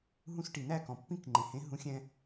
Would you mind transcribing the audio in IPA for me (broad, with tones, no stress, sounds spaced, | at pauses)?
ɦ ũ˧ s ʈ i˩ n æ˥˩ k ɔ̃˩ pː ĩ˥˩ k ŋ͡ǃ ẽ˩ h ẽ˩˥ ɦ ũ˩˥ xʲ ɛ̃˧